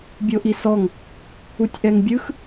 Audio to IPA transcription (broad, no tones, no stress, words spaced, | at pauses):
bʲoʔisɔŋ | utʲʔɛŋbʲɯx